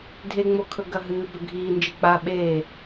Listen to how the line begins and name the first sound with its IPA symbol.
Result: dʱ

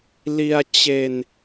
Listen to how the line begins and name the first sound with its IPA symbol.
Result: l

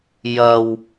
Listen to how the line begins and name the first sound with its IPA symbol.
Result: j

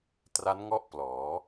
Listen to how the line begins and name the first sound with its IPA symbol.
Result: t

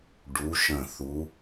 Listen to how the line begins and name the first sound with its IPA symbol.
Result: ɖ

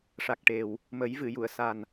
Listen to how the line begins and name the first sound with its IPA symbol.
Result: ʂ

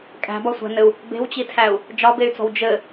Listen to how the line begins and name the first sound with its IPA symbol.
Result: kʼ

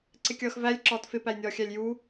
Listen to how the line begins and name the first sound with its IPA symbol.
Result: ǀ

